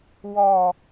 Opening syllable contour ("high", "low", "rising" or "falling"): low